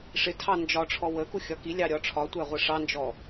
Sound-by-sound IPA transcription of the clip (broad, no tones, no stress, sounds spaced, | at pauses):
ʂ ɪ tʰ ɑ n d͡ʒ ɒ ʈ͡ʂʰ ɔ w ə k u xʲ ɒ k i lʲ ɑ ɾʲ ɒ ʈ͡ʂʰ ɒ tʷ æ ʁʷ ə ʂ ɑ n d͡ʒ ɔ